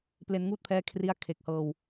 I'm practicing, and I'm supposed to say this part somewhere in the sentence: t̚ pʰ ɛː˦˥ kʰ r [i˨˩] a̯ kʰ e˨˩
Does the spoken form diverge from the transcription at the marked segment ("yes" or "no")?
yes